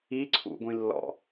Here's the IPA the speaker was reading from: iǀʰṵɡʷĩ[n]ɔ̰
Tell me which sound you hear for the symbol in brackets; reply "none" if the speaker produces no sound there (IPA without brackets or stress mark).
lː